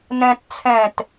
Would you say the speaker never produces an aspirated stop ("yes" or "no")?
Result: no